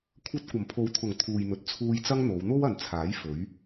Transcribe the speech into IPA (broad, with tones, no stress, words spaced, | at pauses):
kʷʰɐ˧t̚kʷɐ˨˩mpʰo˨˧wt̪ʰʊ˨˩ŋ t̪ʰuː˨jn̪ɵ˨t̚t͡sʰuː˧j t͡sɐ˥ŋn̪o˨˧w n̪o˥wɐ˨nt͡sʰaː˨˥j fɵ˨˥ɥ